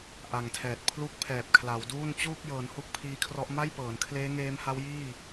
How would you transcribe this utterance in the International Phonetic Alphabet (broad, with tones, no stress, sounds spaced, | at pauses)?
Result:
ʔ a˨˩ ŋ tʰ ɛː˨˩ t̚ pʰ l u˥˩ k̚ pʰ ɛː˨˩ p̚ kʰ l a˩˦ w d uː˥˩ n t͡ɕ uː˥˩ k̚ j ɤː˩˦ n h u˥˩ k̚ pʰ iː˦˥ kʰ r ɔ˦˥ ʔ m a˥˩ j p ɤː˩˦ n kʰ l eː˦˥ ŋ eː˦˥ m h a˦˥ w j iː˥˩